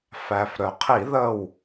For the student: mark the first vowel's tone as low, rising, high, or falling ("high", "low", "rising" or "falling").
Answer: low